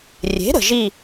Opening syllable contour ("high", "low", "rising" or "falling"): rising